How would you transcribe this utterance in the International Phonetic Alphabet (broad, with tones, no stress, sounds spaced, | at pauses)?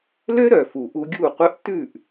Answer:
l ø˦ ɾ œ˨ f u˨ ʔ u˧ ɡʲ u˦˨ qʷ œ˦ ʔ t ʉ˦˨ ʔ